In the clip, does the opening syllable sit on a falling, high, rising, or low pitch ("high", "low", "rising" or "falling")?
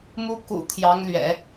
high